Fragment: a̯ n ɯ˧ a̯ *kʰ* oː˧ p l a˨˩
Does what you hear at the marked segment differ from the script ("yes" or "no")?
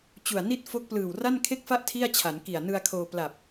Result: no